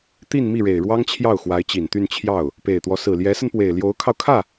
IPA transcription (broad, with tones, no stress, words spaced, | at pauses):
t̪i˥˧nmi˥˩ɻe˨˩ɪ̯ɻwɑ˥ŋ t͡ɕʰjɑ˥˩ʊ̯xwa˧˥ɪ̯t͡ɕi˨˩nt̪y˥˧n t͡ɕʰjɑ˥˩ʊ̯ | pe˨˩ɪ̯t̪wɔ˦ sɹ̩˨˩ljɛ˧˥sə˧npwe˨˩ɪ̯ ljo˧˥ʊ̯kʰɑ˧ʊ̯kʰä˥˩